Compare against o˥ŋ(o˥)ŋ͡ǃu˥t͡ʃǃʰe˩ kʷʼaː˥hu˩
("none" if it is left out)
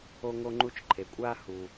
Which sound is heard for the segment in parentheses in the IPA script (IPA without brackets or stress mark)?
o˥